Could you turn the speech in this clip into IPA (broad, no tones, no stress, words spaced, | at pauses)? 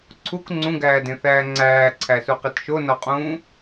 ǀʰuk ŋ͡ǀũɡæːdẽθæː ŋ͡ǀæːǀʰæsuqit ʃonɒqʼũː